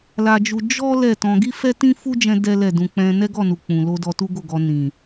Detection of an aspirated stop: absent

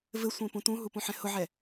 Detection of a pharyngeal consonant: present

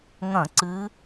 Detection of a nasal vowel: present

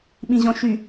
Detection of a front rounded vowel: present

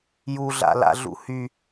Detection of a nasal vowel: absent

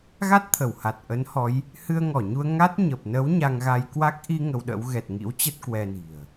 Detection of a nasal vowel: absent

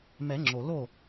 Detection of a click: present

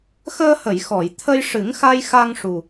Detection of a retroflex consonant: present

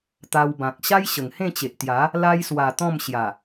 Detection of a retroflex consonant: absent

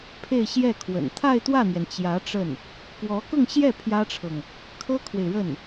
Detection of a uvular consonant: absent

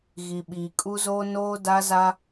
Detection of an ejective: present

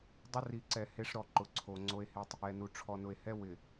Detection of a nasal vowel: absent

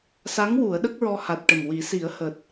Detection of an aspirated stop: absent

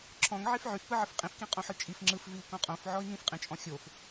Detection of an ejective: present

